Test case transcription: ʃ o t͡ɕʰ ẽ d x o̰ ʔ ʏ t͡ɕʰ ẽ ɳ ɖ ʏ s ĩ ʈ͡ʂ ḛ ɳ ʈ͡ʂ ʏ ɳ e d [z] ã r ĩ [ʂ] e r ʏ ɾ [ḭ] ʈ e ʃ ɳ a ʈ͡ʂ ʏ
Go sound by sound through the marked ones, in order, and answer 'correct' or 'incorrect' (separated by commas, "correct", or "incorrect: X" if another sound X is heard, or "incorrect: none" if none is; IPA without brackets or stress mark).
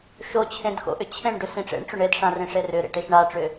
incorrect: ʂ, correct, incorrect: ḛ